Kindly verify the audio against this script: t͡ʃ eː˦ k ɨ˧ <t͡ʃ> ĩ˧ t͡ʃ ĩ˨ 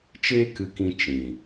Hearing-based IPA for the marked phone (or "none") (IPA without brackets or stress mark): k